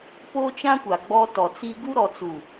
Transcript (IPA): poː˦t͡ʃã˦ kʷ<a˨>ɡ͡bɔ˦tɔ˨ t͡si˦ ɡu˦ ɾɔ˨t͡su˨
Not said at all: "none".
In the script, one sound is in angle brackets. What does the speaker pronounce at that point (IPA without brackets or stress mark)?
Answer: a˨